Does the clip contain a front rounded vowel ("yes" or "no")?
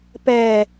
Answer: no